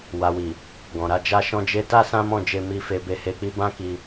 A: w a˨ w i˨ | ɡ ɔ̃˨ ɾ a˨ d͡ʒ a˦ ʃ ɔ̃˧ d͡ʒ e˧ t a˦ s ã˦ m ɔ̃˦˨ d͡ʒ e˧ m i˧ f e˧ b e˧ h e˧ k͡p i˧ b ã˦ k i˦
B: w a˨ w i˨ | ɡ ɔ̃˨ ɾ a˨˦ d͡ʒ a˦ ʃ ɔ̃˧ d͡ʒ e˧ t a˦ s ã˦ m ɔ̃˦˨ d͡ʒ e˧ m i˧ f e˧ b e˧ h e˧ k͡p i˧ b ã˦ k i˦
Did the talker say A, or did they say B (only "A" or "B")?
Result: B